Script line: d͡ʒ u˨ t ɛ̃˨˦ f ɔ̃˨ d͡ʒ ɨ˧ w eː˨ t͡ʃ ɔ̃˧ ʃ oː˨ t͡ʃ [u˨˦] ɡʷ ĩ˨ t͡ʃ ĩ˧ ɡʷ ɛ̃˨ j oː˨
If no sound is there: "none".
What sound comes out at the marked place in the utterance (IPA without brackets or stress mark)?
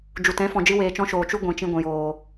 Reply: u˧